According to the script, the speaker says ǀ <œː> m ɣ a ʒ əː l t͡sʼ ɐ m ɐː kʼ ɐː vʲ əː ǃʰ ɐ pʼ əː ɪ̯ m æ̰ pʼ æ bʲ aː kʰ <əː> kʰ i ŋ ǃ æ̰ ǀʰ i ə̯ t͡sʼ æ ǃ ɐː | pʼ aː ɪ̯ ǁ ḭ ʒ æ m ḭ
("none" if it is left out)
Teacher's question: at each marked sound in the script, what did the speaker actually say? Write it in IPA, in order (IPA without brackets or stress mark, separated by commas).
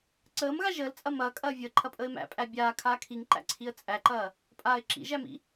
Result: əː, aː